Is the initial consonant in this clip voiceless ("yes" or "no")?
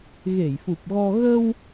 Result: no